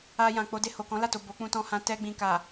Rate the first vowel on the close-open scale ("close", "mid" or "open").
open